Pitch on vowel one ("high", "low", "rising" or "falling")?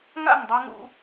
falling